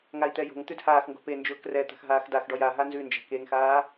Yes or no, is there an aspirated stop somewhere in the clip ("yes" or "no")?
no